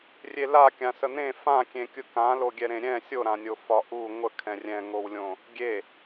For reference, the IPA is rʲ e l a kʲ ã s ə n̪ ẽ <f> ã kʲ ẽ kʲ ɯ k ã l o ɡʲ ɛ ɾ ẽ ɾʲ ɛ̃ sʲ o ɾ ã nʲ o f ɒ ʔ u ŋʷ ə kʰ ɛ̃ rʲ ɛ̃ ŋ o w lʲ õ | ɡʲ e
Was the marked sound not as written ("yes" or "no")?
no